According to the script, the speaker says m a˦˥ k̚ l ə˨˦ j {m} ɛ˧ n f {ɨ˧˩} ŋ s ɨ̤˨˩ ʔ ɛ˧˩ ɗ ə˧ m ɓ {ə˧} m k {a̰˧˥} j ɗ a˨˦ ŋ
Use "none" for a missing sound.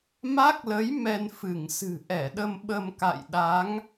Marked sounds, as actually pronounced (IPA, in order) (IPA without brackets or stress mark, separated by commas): m, ɨ˧˩, ə˧, a̰˧˨